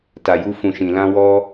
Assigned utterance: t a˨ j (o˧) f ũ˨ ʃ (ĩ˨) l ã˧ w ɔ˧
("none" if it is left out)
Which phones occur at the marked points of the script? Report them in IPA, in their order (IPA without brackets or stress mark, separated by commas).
u˧, ĩ˨